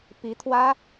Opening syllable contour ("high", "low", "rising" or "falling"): rising